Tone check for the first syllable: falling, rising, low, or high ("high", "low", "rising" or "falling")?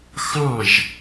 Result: falling